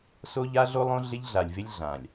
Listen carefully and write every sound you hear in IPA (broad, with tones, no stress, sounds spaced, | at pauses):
s o˦ ʎ a˦ ɮ o˦ lˠ õ˦ ɮ ɪ˦ ʎ ɮ a˨ lʲ v ɪ˦ lʲ ɮ ã˨ lʲ